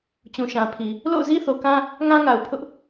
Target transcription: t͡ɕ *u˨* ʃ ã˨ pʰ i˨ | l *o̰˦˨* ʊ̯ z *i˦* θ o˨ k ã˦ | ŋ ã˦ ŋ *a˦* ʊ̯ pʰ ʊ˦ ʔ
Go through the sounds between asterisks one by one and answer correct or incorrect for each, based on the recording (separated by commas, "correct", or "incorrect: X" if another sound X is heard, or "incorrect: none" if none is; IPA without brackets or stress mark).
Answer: incorrect: ũ˨, correct, correct, incorrect: a˨